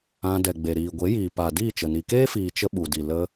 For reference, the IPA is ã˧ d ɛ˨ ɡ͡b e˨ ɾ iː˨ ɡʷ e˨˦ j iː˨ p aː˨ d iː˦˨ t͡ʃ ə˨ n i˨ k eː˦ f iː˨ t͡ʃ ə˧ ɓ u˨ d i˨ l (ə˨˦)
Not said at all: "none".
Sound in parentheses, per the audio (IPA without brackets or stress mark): ə˧